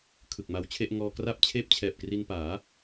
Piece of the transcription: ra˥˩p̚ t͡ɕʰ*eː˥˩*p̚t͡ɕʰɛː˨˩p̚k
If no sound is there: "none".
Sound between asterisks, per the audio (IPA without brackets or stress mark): eː˥˩